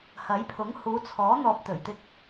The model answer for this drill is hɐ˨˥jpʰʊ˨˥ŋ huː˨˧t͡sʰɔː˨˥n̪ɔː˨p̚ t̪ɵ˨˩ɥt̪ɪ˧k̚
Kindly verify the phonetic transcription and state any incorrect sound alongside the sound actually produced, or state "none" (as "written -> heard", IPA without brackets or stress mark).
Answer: none